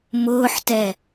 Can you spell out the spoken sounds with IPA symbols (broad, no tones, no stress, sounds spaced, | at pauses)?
m ʊː ħ t ɛ